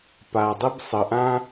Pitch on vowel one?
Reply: low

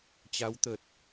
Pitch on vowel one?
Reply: rising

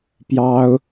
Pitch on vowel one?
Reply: high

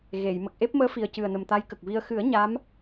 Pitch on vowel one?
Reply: low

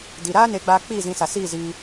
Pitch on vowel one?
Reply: low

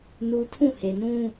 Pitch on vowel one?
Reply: high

